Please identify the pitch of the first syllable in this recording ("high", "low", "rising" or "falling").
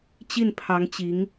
falling